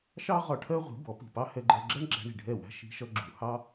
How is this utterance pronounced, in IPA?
ʃ ɑ˥ ʁ ɒ˧ ʈʰ ɜ˥ ʁʷ i̤˩˥ b ɔ˩˥ p i̤˩ p ɑ˥ h ɛ˧ ɡ͡ǃ ɜ˧ ɡ͡ǁ ɜ˥ ɳ ɡ͡ǁ æ̤˧ ɳ i̤˩ ɖʱ ɛ˥˩ w æ̤˥ ʃ i̤˧ ʃ ʌ˧ ɡ͡ǁ u˩ h ɑ˥

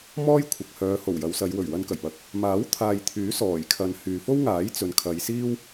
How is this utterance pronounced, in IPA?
m ɔː˥ j kʷʰ ɐ˨ k̚ h œː˨˧ h o˨˩ w j ɐ˨˧ w s ɐ˨˧ j w ɵ˨˩ ɥ w ɐ˧ n k ɐ˨˩ j p ɐ˨˥ k̚ | m aː˨˥ w t̪ʰ aː˨ j t̪ʰ yː˨˥ s ɔː˨˩ j kʰ ɐ˨ n h yː˨ f o˥ w ŋ aː˨˥ j t͡s ɵ˨ n kʰ ɐ˨˧ j s iː˥ w

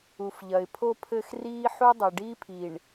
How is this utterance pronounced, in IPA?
u˨ f ʎ ɐ˨ ɪ̯ pʰ o˦ pʰ ɘ˦ x r iː˦ ħ u˦ dˤ i˨ ɖ iː˦ pʰ i˨ ɳ

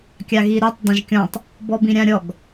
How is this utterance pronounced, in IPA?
kʲ a ɣ i ɾ u tˤ dˤ ɛ̃ ʒ kʲ ɔ̃ tˤ | b ɔ b ĩ ɾʲ ã ɾʲ ɔ ɡ

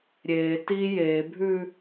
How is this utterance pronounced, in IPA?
ɾʲ eː t i j eː bʱ ʉː

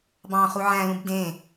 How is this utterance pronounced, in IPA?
b ɑ̃ χ u ʕ æ̃ l ũ b d ẽ

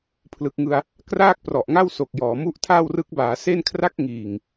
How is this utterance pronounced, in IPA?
pʰ l ɯ˨˩ k̚ ŋ ɯ˧ a̯ | k r aː˥˩ k̚ p r ɔ˨˩ ʔ ŋ a˥˩ w s o˨˩ k̚ j ɔː˩˦ m u˦˥ ʔ tʰ a˥˩ w r ɯ˦˥ k̚ b aː˩˦ s e˥˩ n kʰ r a˥˩ k̚ ŋ iː˨˩ ŋ

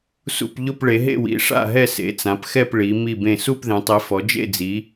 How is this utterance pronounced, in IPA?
s ṵ˥˧ p ʎ ʊ˥˧ p ɭ e˨˦ ɦ ḛ˥˧ w ḭ˨˦ ʂ a̰˥˧ ɦ ɛ˥˧ s ḛ˨˦ t͡s ã˨˦ p x ɛ˥˧ p ɭ i˨˦ m i˥˧ b ẽ˥˧ s u˥˧ p ð ẽ˨˦ tˤ i˨˦ f ɔ˨˦ d͡ʒ ḛ˥˧ d͡z i˨˦

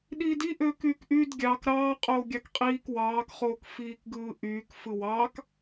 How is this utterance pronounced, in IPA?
ɗ iː d i ʔ øː k yː k ʔ y d ɡʲ ɑ k ɾ ɑː qʼ oː ɡʲ ɑ k qʼ iː k w ɑː k χ oː k f iː k ɡ ɯː ʔ yː k f ɯ w ɑ k

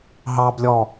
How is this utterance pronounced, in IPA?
ɦ ɑ b lʲ ɔ

